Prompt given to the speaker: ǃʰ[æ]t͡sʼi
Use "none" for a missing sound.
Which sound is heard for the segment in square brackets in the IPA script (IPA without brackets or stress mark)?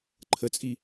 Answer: ə